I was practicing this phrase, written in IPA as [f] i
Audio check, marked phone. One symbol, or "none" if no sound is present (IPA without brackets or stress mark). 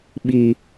ɓ